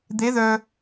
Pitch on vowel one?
rising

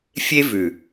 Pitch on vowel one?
high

